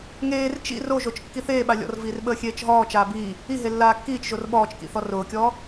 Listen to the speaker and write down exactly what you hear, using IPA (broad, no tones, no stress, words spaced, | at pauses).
ŋeːr t͡ʃḭ roʒot͡ʃ kːiθeː ɓalʲɔ̰rviːrɓəː xʲeːt͡ʃɦɔː t͡ʃaːbiː | iɦe lːaːkːiːt͡ʃʒor ɓɔːt͡ʃkḭθɔ rʊːkʲɔː